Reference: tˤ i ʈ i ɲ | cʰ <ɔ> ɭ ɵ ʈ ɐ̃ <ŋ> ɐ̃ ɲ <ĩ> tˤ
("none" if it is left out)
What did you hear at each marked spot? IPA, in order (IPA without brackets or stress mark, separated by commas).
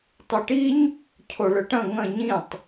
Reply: o, ŋ, ĩ